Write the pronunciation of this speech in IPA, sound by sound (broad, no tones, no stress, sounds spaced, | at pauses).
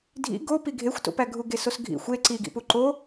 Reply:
dʱ ḭ ɡ o p i ɡʱ e xʷ t o̰ p æ ɡʱ u ɡ e s o s ɡʱ ḭ xʷ e ǀ i ɡ ḭ p u ǃ o